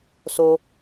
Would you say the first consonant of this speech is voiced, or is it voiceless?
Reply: voiceless